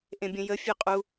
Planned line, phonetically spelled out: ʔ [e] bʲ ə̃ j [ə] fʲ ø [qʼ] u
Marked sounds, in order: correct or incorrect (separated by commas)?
incorrect, correct, correct